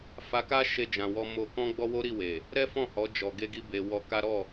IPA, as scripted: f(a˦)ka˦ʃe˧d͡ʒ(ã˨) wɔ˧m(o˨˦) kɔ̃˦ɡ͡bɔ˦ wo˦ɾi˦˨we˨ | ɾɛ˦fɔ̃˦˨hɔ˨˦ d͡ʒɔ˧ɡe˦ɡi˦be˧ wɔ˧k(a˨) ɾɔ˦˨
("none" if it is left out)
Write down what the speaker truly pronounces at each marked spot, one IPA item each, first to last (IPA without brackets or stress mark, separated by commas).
a˧, ã˨, o˧, a˦